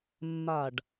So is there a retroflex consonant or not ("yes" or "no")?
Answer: yes